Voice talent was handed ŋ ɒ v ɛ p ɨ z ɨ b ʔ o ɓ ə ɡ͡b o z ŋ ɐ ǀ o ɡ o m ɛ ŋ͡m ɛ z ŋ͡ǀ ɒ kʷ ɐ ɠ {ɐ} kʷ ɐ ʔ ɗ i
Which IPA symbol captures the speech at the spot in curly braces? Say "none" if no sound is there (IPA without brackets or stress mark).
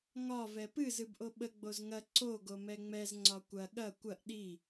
ɐ